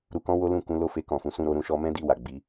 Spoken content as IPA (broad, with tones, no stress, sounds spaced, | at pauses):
ɾ u˧ k ɔ̃˦ w o˦ l ũ˦˨ k ũ˨˦ l o˦˨ f e˧ k ɔ̃˨ f ũ˨ s ũ˧ ɾ o˧ ɾ ũ˧ ʃ ɔ˧ m ɛ̃˦ d i˦˨ w a˨ ɡ͡b i˨˦